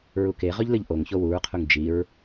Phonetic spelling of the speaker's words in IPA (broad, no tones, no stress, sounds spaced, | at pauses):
ɹ u k e ʁ ɵ ʎ l ɨ ʎ ʔ o ŋ ç o w u ɹ qʰ u ŋ d͡ʒ i ɹ